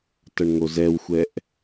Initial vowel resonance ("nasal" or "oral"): oral